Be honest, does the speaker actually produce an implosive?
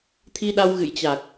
yes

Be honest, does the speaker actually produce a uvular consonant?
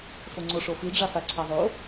no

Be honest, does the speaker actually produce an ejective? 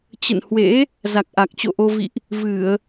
no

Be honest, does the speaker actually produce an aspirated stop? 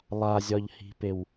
no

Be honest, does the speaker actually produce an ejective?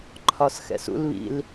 no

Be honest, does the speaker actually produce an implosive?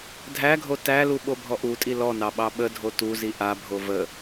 yes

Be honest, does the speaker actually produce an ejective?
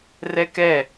no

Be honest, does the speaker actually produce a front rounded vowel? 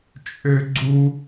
yes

